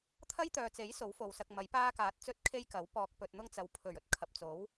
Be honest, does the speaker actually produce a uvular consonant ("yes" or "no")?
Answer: no